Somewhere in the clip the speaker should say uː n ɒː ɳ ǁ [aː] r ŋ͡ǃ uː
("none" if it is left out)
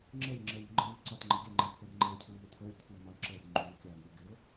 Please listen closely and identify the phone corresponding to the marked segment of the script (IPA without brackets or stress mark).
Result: əː